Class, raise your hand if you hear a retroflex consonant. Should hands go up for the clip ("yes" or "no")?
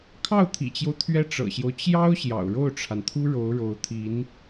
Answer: yes